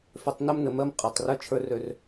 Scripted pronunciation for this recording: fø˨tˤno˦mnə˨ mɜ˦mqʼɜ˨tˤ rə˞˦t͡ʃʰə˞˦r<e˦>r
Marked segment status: incorrect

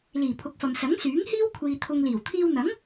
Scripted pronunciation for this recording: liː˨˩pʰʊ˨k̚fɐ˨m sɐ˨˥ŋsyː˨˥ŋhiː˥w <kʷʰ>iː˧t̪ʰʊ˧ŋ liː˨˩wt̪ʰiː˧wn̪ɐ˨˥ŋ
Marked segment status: correct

